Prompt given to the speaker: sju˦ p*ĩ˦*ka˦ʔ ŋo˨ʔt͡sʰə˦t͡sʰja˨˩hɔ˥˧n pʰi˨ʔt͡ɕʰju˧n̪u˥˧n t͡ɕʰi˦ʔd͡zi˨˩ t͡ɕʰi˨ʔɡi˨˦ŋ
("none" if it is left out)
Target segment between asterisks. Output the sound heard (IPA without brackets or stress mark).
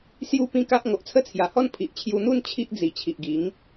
ĩ˦